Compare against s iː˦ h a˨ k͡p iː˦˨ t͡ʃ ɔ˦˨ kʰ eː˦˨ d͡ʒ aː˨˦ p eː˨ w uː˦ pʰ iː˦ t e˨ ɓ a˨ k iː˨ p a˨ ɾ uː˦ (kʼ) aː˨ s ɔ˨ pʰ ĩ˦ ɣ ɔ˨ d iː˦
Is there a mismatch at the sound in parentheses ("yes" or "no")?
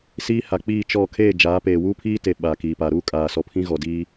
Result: no